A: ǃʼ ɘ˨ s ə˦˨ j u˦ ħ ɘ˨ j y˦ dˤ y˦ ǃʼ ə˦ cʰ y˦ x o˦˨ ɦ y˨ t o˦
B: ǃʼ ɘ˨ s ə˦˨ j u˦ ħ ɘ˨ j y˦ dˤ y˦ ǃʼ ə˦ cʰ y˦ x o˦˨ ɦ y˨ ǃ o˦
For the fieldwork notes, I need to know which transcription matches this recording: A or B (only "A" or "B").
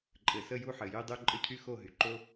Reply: B